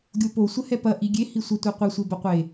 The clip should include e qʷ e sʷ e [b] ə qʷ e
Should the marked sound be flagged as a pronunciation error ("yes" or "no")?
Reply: no